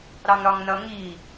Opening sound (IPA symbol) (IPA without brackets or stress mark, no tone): ɾ